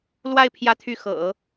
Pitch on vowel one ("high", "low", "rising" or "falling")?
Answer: falling